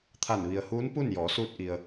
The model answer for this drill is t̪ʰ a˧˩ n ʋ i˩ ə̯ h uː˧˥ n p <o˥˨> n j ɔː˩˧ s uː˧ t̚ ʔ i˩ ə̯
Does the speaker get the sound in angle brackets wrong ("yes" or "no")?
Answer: yes